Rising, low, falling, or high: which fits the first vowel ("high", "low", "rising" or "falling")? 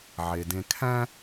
low